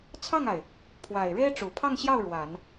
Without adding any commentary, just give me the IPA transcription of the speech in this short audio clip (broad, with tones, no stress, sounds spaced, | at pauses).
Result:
t͡sʰ ɑ˥˩ ŋ a˩ ɪ̯ | pʰ w a˨˩ ɪ̯ ɻ e˥ ɪ̯ ʈ͡ʂ u˨˩ pʰ ɑ˥˧ ŋ ɕ j ɑ˥˩ ʊ̯ ɻ w a˨˩˦ n